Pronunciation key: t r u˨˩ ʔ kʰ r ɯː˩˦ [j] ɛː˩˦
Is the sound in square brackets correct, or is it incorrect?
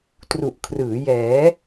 correct